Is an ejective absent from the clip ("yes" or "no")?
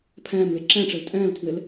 no